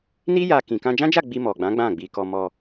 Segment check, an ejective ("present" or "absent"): absent